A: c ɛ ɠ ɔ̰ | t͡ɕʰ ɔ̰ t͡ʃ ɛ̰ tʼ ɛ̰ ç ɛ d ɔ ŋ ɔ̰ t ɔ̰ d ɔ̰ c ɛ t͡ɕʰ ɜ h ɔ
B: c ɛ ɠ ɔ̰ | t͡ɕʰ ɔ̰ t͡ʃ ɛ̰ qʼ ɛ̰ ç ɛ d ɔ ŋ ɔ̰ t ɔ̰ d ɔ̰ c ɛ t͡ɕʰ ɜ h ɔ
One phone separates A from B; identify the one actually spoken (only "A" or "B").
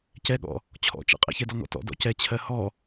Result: B